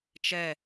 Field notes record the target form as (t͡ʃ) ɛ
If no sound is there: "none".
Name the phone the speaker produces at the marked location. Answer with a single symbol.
t͡ʃ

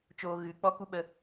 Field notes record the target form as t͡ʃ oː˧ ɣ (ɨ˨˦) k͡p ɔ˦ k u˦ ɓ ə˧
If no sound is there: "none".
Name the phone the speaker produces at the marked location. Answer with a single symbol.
ɨ˨˦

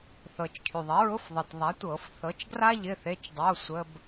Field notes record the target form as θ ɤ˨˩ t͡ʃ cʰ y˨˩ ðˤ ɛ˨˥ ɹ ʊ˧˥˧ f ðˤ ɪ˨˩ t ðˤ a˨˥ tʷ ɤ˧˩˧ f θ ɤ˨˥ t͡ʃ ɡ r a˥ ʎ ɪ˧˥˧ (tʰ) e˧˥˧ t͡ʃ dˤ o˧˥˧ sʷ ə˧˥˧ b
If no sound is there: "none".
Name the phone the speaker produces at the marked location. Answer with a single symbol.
θ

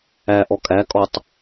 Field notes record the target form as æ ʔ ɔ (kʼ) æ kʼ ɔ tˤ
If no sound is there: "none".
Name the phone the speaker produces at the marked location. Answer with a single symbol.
kʼ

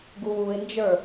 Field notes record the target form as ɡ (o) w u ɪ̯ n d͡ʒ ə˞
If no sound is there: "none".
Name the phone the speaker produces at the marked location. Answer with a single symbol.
u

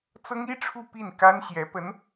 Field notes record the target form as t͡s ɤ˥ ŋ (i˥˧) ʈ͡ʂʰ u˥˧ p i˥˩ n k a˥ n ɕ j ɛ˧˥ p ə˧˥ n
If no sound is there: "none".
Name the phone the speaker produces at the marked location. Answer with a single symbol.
i˥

